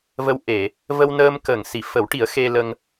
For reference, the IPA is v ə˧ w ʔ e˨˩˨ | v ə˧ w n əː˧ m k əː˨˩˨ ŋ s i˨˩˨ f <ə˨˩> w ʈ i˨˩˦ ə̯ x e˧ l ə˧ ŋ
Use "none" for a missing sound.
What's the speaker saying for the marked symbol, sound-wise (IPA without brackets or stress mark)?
ə˨˩˦